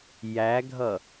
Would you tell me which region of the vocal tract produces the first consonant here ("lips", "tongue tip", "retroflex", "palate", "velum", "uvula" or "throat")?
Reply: palate